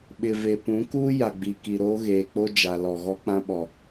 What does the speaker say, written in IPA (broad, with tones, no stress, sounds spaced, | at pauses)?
ɓ ɪ˨ v e˨ p ũ˨˦ k uː˦ j a˨ ɡ͡b i˨ k i˨ ɾ oː˦ ɣ eː˨ k͡p o˦ d͡ʒ a˨ l ɔ˨ ɣ ɔ˦ k͡p ã˦ ɓ ɔ˨